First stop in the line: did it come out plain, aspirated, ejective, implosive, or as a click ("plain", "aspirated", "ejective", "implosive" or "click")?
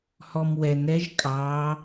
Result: ejective